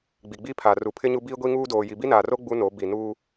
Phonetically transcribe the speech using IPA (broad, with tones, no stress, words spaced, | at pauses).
ɡ͡bi˨ɡ͡bi˦pʰa˨ ru˨pʰɪ˦ɲu˦ biː˦ɡʷi˦ŋuː˦ doː˨ ji˨bi˦naː˨ro˦ ɡ͡bu˦no˨˦ bi˨nuː˦